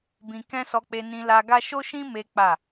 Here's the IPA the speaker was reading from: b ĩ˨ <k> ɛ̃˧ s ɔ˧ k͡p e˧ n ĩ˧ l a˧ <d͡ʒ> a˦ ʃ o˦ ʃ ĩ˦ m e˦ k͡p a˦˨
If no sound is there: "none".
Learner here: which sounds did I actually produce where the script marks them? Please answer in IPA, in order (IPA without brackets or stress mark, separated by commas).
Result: k, ɡ